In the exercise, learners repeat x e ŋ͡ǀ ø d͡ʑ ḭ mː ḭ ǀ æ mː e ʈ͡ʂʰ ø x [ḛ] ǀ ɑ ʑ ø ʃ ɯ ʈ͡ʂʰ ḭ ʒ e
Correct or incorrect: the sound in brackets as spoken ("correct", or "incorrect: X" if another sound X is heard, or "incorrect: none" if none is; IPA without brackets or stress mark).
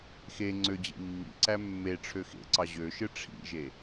correct